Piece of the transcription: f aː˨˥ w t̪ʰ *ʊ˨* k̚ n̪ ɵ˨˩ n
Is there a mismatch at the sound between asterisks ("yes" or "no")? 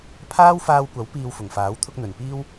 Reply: yes